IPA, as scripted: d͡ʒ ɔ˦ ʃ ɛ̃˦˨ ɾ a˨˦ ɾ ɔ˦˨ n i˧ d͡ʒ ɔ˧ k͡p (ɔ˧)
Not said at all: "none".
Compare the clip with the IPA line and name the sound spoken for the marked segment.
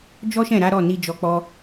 ɔ˦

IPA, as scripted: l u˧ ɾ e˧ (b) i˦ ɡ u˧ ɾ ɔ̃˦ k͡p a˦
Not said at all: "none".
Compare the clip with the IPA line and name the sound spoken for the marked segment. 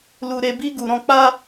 b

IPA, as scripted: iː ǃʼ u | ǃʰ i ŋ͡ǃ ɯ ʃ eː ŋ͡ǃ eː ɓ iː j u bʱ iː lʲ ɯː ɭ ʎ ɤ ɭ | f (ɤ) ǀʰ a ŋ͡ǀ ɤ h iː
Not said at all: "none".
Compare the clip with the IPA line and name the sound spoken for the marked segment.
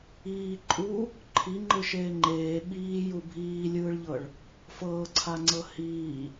ɤː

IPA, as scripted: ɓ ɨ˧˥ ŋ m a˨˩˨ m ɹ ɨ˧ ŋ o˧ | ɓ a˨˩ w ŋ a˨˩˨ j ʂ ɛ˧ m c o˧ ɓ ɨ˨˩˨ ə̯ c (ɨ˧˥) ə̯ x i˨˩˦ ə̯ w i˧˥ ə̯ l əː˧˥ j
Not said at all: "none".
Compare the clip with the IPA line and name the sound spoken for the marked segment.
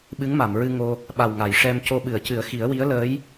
ɨ˨˩˦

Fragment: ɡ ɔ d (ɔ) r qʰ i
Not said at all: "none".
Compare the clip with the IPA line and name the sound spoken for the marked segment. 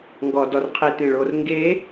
ɔ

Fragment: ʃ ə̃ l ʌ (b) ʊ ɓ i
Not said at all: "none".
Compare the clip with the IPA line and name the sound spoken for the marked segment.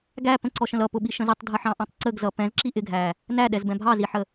p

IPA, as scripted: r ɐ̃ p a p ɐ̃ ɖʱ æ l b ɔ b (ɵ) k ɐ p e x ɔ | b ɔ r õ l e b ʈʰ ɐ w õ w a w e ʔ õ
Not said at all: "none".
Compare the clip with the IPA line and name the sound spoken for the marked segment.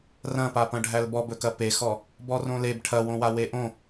ɵ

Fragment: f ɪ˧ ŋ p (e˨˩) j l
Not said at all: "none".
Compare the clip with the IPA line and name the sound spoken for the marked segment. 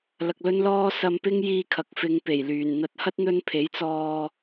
e˨˩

